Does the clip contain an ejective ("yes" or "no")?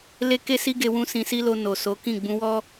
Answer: no